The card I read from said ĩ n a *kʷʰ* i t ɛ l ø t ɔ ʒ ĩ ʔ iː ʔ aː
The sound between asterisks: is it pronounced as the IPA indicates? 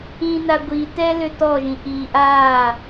no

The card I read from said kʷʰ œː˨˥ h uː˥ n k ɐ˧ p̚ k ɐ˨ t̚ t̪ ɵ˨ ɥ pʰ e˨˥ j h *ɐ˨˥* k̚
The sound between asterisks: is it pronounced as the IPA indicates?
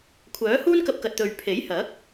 yes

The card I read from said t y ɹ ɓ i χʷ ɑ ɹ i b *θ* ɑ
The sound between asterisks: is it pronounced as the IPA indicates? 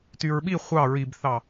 yes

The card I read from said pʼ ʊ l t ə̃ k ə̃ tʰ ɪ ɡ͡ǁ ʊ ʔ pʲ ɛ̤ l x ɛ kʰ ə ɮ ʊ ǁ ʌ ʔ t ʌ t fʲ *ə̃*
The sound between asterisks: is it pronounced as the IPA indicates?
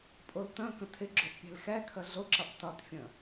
yes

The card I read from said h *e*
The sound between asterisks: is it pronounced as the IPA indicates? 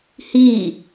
no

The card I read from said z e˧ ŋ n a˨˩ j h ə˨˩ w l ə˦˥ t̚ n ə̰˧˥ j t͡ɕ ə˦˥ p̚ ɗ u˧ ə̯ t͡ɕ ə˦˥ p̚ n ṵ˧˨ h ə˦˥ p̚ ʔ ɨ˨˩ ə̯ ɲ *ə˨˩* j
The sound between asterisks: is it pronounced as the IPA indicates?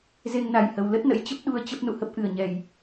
no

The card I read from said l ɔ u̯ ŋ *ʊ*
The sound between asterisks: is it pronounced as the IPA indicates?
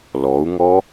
no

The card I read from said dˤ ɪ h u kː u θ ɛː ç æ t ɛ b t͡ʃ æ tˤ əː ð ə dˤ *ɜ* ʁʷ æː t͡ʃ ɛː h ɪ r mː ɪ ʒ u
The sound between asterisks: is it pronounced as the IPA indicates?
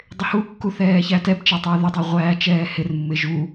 yes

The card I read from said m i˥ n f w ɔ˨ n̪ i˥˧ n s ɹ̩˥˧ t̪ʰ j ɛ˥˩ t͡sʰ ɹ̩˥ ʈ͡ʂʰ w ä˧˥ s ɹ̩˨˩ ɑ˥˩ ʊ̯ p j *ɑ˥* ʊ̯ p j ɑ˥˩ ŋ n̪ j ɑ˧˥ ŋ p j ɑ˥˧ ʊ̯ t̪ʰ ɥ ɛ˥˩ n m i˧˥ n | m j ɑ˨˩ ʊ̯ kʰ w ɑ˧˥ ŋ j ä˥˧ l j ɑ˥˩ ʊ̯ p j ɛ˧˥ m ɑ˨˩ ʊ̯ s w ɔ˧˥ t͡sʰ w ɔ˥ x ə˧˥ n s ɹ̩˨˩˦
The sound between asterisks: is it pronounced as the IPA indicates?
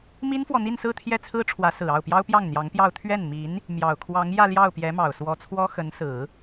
yes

